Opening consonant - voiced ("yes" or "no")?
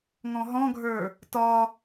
yes